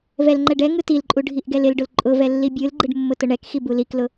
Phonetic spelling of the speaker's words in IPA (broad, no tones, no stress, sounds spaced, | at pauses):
v ɛ l ŋ͡ǃ ɛ ɖ ɛ ŋ ɯ t i l ǃʼ u ɖʱ i ʔ ɡ ɛ l ɪ l ɖ ʊ l ǃʼ ʊ v ɛ lː i bʲ ɯ l ɡ͡ǃ ɯ ɖ mː ʊ t ʊ ɳ ɛ k x i b u l i k l ʊ